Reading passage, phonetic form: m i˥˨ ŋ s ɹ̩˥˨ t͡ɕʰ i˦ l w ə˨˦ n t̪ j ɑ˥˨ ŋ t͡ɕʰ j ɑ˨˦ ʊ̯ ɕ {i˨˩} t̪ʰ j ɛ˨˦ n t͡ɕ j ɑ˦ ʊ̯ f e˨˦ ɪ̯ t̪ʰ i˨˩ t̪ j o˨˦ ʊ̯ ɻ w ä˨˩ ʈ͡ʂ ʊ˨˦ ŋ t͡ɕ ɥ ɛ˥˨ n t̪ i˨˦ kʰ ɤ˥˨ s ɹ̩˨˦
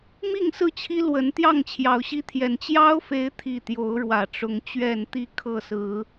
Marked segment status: incorrect: i˦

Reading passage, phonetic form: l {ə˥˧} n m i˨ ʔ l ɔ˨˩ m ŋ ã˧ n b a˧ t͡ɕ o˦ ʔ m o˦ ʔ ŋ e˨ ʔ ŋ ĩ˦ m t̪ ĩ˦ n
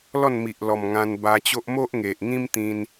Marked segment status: incorrect: ɔ˥˧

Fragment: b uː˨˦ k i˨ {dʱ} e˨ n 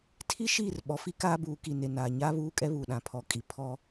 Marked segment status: incorrect: n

